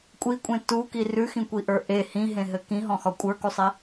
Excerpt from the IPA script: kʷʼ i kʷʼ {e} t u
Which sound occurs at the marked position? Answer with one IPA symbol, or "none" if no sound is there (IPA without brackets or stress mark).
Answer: ẽ